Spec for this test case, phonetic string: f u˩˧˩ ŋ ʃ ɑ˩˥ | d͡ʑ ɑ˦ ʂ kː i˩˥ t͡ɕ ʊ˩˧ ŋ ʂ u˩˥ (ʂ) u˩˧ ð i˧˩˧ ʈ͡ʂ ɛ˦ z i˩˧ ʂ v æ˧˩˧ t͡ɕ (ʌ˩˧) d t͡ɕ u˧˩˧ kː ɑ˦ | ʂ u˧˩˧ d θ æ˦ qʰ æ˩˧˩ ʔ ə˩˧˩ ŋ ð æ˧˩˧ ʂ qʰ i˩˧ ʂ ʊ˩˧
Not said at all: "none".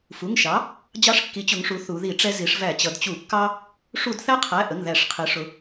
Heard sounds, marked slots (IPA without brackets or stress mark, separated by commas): θ, ʌ˩˧